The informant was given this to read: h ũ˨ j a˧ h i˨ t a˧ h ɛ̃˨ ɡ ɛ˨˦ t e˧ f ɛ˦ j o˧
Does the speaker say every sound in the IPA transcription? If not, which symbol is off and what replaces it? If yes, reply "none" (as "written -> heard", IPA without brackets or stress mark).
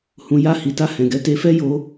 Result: none